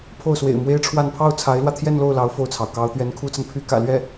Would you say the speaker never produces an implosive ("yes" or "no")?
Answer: yes